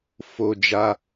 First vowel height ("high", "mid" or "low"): mid